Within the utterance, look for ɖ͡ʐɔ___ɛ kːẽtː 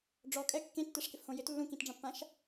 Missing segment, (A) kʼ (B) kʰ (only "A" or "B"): A